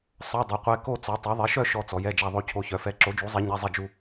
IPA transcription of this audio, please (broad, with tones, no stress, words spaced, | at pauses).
sˤœ˧˥˧dˤœ˨˥qʷɛ˧˥˧ ko˥˧t͡sɔ˨˥ tˤœ˨˥ðˤɛ˨˥ʃœ˥˧ ʃɔ˥˧t͡sɔ˨˥j ɛ˧˥˧d͡ʒa˥˧ ðˤo˥˧cʰo˧˥˧çœ˨˥fɛ˧˥˧ ǁo˨˥d͡ʒu˨˥zˤɛ˨˥ ɲɛ˧˥˧zˤɛ˥˧ d͡ʒu˥˧